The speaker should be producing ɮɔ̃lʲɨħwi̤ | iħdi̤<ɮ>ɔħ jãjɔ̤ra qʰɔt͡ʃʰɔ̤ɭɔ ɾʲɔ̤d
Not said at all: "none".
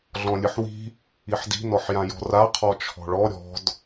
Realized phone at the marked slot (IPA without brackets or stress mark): n